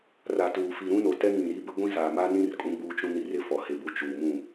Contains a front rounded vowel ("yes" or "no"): no